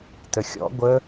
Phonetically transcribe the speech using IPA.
təxʲɔ̰ ɡʷə

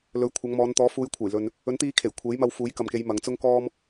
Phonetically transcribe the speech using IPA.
lɵ˨˧ɥkʷʰɐ˨˧ŋmɔː˨˧nt̪ɔː˨˥ fuː˨˧jkʷʰɐ˨˩j lɵ˨n | ɵ˨˥nt̪iː˧kʰe˨˩j kʷʰe˨˥jmɐ˧wfuː˨˥j kɐ˨mke˨˧j mɐ˨˧ŋt͡sʊ˥ŋkɔː˥m

